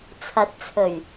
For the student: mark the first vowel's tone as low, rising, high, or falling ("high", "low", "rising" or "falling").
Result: rising